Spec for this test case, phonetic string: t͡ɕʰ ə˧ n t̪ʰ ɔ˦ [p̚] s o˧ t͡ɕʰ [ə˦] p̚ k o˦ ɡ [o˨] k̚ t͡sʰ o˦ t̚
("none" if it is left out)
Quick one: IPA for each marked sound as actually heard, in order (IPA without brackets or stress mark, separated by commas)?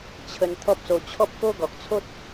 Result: p̚, ɔ˦, ɔ˨